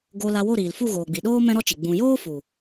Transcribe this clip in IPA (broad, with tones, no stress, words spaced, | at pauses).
ɡo˧ la˧wo˦˨ɾiː˨l fu˦˨ɣoː˨ɡ͡bi˨ɗoː˦ mɛ̃˦ɾɔ˦t͡ʃi˨ ɡ͡bũ˨joː˦fu˨